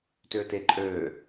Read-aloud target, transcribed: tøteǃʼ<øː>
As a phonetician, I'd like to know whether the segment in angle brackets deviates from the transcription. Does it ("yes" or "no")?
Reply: no